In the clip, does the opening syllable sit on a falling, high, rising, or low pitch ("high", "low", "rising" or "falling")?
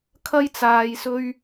high